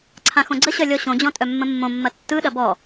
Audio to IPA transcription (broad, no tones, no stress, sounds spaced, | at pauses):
ǀʰ ã x õ ɡ͡ǀ ə ɕ œ lʲ ɔ ɕ õ d͡ʑ ɔ̃ tʼ œ mː ə̃ mː õ mː ɐ tː ɯ ɗ ɐ b ɔ